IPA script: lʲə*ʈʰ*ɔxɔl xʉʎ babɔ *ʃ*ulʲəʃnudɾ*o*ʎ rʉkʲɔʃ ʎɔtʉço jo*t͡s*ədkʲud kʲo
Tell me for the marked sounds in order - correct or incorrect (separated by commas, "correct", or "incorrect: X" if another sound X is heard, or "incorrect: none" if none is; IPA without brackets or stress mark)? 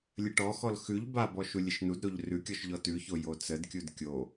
incorrect: ʈ, correct, correct, correct